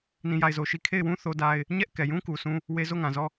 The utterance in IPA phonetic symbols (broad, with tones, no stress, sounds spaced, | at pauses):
n ĩ˦˨ j a˦˨ ɪ̯ z o˨ ʃ i˨ kʰ e˦˨ ɪ̯ w ũ˦ θ o˦ d a˦ ɪ̯ | ɲ ɛ˦ ʔ k ɛ˨ j ũ˦ k u˨ s ũ˦ | w e˦ z o˦˨ ŋ ã˨ z ɔ˦˨